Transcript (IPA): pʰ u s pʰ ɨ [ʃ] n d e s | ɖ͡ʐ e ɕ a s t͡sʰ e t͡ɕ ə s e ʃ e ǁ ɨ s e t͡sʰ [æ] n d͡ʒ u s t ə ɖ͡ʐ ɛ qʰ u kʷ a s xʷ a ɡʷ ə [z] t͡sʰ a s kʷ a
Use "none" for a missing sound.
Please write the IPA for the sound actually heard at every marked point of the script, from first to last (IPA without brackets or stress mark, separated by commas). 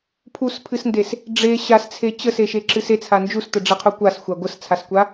s, a, s